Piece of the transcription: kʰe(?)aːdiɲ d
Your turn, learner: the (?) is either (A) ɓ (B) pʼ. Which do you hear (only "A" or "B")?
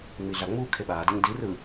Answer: A